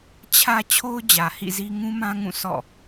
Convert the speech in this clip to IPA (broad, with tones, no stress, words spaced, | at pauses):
t͡ɕʰä˦ t͡ɕʰo˦ʊ̯d͡ʑä˨hḭ˦˨zi˦ ŋũ˦mã˦ŋũ˦˨ sʰɔ̰˦˨